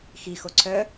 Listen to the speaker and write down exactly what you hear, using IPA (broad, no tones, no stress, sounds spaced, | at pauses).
x i x o ǀʰ œ